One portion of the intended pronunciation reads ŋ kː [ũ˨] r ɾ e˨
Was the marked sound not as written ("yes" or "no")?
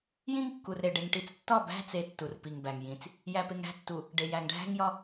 yes